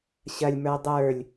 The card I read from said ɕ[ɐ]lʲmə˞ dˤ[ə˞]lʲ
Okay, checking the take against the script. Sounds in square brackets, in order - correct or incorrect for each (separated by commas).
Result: correct, correct